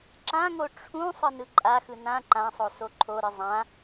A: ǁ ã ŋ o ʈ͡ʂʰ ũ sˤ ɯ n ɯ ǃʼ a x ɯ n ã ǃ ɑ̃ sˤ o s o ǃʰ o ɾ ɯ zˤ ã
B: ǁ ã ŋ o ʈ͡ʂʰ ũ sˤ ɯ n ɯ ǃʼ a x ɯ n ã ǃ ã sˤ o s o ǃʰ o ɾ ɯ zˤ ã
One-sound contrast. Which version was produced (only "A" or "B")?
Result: B